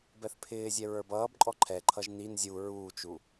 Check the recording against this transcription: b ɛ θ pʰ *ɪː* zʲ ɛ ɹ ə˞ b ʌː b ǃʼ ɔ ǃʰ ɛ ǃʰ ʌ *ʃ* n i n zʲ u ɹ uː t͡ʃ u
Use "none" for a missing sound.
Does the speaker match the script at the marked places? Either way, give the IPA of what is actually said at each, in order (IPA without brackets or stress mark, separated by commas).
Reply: ɪː, ʒ